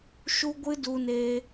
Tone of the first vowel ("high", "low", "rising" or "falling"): high